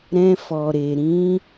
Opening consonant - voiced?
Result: yes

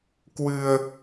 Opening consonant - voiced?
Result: no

